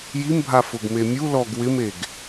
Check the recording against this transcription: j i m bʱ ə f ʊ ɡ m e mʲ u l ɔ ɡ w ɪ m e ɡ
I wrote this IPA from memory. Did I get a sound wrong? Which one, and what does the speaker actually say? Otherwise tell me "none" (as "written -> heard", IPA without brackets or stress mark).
ə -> a